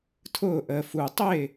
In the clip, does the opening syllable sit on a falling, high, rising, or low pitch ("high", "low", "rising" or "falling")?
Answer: falling